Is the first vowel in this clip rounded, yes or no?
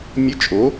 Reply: no